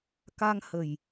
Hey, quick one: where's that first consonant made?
velum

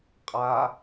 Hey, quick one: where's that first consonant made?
uvula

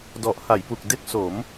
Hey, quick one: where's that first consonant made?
tongue tip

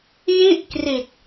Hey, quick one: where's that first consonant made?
palate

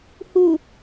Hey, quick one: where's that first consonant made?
throat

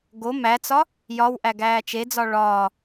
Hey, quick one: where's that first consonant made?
velum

